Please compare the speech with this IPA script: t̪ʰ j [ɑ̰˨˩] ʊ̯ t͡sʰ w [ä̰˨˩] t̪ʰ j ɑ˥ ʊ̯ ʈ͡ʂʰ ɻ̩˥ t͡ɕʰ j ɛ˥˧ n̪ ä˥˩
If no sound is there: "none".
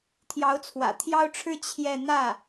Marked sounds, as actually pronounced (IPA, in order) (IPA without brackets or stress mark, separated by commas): ɑ˧˥, ä̰˨˩